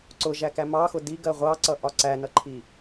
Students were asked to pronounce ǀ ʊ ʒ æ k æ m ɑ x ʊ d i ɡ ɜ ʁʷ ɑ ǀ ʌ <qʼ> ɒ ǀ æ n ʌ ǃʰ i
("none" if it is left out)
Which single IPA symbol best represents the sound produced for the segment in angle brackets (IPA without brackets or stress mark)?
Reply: ʔ